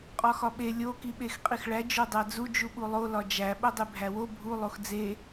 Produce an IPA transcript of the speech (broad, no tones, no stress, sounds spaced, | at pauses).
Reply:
qʼ ɒ x ɒ ɓ e lʲ o k i ɓ e x qʼ i x ɭ æ d͡ʒ o dˤ æ d͡z u d͡ʒ u ɓ u lˠ o l ɒ d͡ʒ æ ɓ o dˤ e bʱ æ w o bʱ u lˠ o x d͡z e